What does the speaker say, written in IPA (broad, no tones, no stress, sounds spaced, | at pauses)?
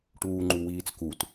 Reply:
ʈ uː ŋ͡ǃ u w iː t͡s k u t